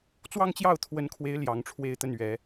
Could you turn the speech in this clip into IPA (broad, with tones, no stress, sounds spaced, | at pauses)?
t͡s w ɑ˥˧ ŋ t͡ɕ j ɑ˥˩ ʊ̯ t̪ʰ w ə˧˥ n kʰ w e˧˥ ɪ̯ l j ɑ˧˥ ŋ ʈ͡ʂʰ w e˥˧ ɪ̯ t̪ ə˥˩ n ɥ ɛ˧˥